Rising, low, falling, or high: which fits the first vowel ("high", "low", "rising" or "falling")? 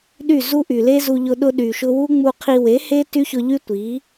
falling